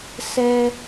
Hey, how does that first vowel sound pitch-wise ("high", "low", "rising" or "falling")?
low